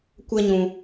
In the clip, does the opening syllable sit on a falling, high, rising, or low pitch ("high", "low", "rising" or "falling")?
high